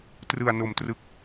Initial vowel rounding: unrounded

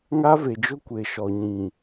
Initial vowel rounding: unrounded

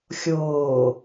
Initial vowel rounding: rounded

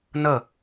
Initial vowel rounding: unrounded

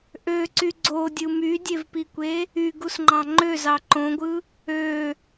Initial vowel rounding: rounded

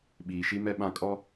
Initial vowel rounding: unrounded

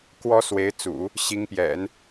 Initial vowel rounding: rounded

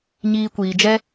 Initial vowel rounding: unrounded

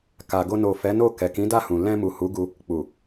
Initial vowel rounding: unrounded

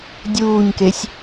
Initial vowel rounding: rounded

